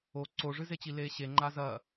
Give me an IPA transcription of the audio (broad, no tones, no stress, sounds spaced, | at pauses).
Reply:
o ǀ o ʐ ɨ z e t͡ɕ i l eː ɕ e ŋ͡ǃ a z ɐ